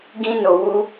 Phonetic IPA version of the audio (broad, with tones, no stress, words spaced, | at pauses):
ɡĩ˦no˧wu˦